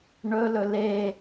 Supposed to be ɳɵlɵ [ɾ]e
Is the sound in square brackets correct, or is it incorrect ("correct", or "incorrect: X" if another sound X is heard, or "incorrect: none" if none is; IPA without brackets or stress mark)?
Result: incorrect: l